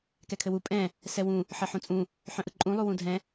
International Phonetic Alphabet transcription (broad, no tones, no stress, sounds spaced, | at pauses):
k ɛ kʰ ɘ w u pʼ ɛ̃ | s ɛ w ũ | ħ ɘ ħ ũ t͡sʼ ũ | ħ œ̃ ʔ ɯ ǃʼ ũ lˠ u w ũ dʱ ɛ̃